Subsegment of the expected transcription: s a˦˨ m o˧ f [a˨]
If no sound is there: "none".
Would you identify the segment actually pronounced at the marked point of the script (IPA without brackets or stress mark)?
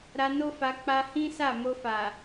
a˨